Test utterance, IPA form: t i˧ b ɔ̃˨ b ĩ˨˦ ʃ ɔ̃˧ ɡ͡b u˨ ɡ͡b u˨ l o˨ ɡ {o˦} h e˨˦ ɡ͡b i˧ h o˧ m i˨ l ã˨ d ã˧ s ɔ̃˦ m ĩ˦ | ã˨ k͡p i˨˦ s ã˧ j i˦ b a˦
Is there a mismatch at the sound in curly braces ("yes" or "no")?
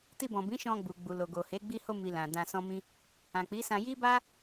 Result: yes